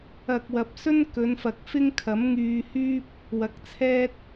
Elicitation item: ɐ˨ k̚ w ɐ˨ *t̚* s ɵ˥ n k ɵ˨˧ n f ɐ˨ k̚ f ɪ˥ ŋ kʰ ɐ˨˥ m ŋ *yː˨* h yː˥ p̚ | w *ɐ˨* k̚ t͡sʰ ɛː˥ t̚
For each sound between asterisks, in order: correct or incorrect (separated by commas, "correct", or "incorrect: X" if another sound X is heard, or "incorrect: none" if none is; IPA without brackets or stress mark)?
incorrect: p̚, incorrect: yː˧, correct